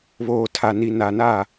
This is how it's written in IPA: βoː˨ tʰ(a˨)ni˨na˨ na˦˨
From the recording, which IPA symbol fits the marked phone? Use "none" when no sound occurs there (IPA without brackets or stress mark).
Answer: a˨